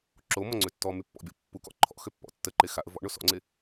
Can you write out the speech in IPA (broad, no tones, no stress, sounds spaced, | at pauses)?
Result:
ǁ o m ɔ ŋ͡ǀ ø tː ɔ m y pː ɔ̰ bʲ ɔ pː u k ɔ̰ ǃʰ ɔ̰ x ø pː ɔ̰ tː ə ǃ e x a ʔ ə v ɔ̰ ɳ o s ɔ̰ ŋ͡ǀ e